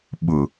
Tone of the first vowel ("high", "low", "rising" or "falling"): low